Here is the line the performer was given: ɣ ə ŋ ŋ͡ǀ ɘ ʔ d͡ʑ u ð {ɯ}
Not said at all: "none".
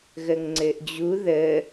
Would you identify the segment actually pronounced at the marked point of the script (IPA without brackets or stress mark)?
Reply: ə